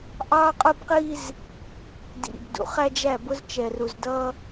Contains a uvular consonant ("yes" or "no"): yes